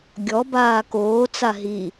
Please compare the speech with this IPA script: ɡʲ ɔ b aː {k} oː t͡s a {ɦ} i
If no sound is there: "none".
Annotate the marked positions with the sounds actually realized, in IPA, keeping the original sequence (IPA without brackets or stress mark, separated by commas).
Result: k, ɦ